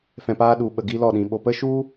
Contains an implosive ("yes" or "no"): yes